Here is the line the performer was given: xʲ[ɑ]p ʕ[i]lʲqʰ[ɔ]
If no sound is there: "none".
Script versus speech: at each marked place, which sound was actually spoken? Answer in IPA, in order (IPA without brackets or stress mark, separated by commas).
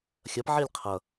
ɐ, i, ʌ